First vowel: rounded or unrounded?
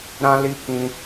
unrounded